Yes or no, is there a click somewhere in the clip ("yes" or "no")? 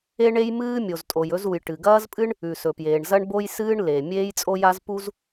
no